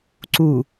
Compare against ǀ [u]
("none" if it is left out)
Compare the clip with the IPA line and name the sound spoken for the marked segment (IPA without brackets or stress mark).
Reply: u